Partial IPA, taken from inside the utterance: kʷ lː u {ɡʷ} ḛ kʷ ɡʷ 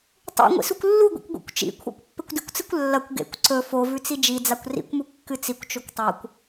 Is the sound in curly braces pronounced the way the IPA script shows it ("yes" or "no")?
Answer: yes